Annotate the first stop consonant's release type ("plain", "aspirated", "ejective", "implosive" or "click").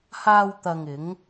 plain